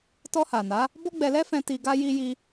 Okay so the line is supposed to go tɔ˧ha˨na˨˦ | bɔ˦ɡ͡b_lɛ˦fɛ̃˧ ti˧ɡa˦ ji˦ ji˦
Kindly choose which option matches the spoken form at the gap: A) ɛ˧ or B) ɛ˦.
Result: A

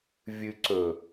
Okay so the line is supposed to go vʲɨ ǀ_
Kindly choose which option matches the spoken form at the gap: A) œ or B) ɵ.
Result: B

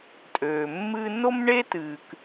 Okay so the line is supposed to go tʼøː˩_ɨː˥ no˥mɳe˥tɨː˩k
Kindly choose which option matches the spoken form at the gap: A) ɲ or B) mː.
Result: B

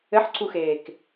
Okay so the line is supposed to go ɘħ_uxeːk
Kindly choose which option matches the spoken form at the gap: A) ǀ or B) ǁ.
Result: A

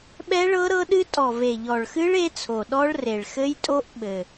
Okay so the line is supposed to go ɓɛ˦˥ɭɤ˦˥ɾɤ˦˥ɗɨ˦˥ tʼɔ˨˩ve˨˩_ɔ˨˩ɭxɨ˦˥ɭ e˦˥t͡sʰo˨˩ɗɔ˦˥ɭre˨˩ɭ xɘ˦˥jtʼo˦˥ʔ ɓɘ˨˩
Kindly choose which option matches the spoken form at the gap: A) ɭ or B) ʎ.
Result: B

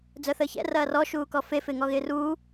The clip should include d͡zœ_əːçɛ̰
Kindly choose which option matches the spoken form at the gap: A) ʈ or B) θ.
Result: B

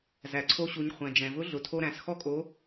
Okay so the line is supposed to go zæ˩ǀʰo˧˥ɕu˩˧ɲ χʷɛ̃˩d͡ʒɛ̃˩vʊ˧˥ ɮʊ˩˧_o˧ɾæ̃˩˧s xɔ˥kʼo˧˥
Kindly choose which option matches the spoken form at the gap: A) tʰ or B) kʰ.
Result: A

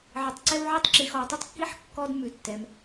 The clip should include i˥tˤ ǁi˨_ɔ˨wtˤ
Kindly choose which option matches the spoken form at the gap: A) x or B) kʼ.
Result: A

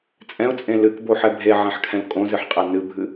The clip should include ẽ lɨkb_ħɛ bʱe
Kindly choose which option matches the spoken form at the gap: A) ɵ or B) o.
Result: B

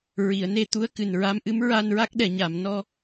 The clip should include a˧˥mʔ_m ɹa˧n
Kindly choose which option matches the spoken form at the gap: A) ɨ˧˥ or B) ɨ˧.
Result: A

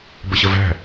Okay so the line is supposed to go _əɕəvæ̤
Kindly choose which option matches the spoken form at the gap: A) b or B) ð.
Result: A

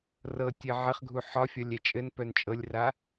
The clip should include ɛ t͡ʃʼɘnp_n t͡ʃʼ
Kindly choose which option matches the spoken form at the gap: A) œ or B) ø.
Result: A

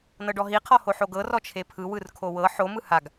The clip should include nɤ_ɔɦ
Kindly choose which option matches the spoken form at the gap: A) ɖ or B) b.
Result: A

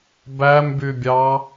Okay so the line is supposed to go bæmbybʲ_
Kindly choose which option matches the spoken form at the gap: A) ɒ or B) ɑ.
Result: B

